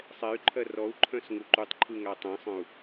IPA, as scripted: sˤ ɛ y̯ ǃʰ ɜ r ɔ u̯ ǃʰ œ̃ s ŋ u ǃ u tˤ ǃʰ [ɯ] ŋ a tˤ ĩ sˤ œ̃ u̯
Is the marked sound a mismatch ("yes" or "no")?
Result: no